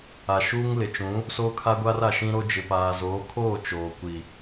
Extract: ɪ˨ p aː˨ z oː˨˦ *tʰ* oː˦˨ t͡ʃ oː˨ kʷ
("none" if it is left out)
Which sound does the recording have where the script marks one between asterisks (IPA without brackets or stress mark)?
kʰ